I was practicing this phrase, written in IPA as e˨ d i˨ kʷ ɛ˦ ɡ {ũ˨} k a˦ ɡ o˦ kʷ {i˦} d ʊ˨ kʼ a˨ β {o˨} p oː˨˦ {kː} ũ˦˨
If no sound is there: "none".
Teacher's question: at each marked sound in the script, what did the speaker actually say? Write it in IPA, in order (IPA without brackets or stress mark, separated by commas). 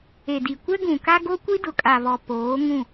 ũ˨, i˦, ɔ˨, ŋ